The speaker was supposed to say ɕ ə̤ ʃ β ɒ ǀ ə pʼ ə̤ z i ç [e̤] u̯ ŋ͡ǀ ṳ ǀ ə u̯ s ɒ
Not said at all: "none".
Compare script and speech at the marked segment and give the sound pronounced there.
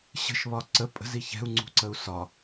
ɛ̤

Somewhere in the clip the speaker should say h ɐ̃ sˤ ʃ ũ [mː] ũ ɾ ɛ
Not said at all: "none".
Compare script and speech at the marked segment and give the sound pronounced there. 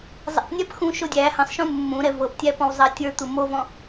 mː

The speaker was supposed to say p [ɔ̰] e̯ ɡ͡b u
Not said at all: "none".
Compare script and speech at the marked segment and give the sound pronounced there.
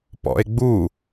ɔ̰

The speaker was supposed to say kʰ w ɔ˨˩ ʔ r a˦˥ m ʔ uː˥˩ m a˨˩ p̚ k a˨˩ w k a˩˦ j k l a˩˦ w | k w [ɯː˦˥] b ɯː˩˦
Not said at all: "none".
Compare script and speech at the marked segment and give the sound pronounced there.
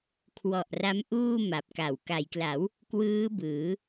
ɯː˦˥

